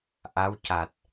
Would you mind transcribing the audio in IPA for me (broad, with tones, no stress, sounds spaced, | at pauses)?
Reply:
ʔ a˧˥ w c a˨˩ t̚